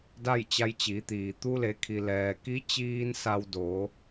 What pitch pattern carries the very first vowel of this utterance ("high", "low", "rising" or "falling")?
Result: falling